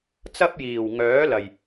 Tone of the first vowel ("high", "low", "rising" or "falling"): high